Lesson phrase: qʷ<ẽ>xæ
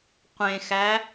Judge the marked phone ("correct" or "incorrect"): correct